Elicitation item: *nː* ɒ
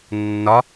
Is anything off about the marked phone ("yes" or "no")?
no